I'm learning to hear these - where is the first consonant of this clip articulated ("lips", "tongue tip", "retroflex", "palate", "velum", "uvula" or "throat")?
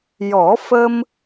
palate